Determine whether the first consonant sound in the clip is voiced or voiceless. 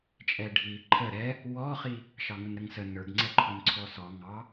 voiceless